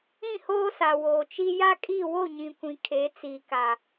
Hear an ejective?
yes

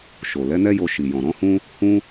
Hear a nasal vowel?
yes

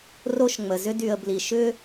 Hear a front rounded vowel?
yes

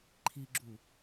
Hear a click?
yes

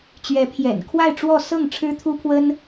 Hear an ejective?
no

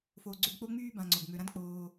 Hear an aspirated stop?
no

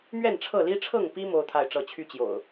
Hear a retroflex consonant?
yes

